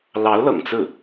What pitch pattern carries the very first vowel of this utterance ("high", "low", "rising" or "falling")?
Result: rising